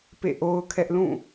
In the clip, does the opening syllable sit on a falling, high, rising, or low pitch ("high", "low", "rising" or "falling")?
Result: falling